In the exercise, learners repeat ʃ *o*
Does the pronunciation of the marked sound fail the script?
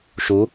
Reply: yes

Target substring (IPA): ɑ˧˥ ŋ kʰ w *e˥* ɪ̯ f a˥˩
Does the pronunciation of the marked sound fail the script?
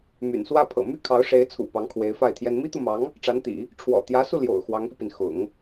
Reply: yes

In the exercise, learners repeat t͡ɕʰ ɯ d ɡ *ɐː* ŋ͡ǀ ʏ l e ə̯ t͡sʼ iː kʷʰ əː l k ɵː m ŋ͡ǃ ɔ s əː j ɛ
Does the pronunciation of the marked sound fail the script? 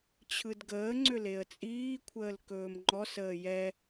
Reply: yes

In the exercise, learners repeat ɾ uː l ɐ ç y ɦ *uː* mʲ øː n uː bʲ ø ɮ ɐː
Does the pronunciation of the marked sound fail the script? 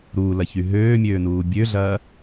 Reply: yes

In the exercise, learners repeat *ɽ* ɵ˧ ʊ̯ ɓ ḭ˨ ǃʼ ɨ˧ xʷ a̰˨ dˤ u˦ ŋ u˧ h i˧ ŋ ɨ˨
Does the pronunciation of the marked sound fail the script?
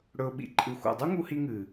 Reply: no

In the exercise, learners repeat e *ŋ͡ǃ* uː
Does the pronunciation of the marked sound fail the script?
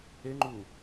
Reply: no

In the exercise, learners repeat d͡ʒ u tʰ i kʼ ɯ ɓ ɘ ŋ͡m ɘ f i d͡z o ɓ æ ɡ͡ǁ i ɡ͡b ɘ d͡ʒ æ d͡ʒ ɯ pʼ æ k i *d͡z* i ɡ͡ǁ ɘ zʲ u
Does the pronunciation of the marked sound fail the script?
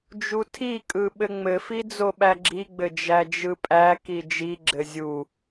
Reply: yes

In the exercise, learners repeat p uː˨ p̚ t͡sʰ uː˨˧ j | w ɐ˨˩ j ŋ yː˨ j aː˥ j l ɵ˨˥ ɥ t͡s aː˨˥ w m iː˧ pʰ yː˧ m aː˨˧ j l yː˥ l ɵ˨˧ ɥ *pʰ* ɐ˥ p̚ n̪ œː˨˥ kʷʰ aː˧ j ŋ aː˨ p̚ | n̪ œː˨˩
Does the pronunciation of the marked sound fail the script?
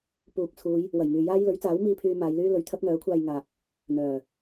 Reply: yes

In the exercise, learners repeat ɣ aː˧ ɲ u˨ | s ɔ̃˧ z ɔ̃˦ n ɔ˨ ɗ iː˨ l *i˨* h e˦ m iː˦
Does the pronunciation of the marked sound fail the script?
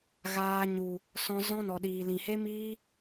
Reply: yes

